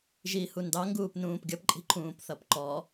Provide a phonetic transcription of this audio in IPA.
ʒihundɑ ŋɡuːpnũːpɡʲʌp ǃʼi̤ǃʰũːpθʌpǃɔ

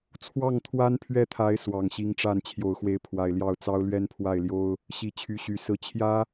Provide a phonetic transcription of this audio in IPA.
t͡sʰwɑ˥˩ŋt̪ʰwa˥npʰɥɛ˥˩t̪ʰa˧˥ɪ̯ swɑ˨˩ŋɕi˧˥ŋʈ͡ʂa˥˩n t͡ɕʰjo˨˩ʊ̯xwe˧˥ɪ̯ pʰwa˨˩ɪ̯ljɑ˥˩ʊ̯t͡sɑ˥ʊ̯ lɥɛ˥npʰwa˥˩ɪ̯ljo˥ʊ̯ | ɕi˧˥t͡ɕʰy˧˥ɕy˨˩sɹ̩˧˥ t͡ɕʰjä˥

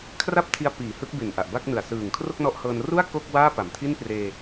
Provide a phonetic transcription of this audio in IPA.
kʰra˥˩p̚tʰi˧a̯piː˩˦ hɯ˦˥k̚be˨˩n ʔa˨˩ʔba˥˩k̚nɯ˨˩a̯ sɯː˨˩ŋ kʰro˥˩k̚nɔ˦˥ʔhɤː˧n ru˥˩a̯ ko˥˩k̚waː˥˩ pa˨˩mtʰi˥˩n preː˧

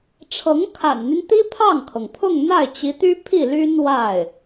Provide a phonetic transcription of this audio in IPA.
ʈ͡ʂʰɤ˧˥ŋkʰa̰˨˩nn̪y˦n t̪i˥pʰɑ˥˩ŋkʰɤ˩ŋpʰʊ˥˧ŋ n̪a˥˩ɪ̯t͡ɕi˧˥t̪y˥pʰi˥˩ ly˥nwa˥˩ɪ̯

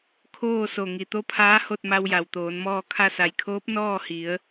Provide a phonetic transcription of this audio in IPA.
kʰoː˥˨so˧˩ ŋi˩t̪o˧˥pʰaː˧˥ ho˥˨t̚ma˧wja˩w t̪oː˩˧nmɔː˥˨ kʰa˧sa˩jkʰoː˧˥p̚ nɔː˥˨hi˩˧ə̯

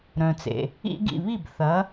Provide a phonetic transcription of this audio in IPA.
ɾœ̃˩t͡sḛ˩ | ḭ˥ɡ ḭ˥˩βi˥˩b θɐ˩˥

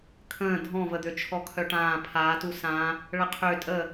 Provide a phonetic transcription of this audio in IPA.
kʰə̃ː dʱɔ̃vəd̪ø t͡ʃʰɔkʰœʈãː pʰaːtu sã | ɭəqʰø tʼə

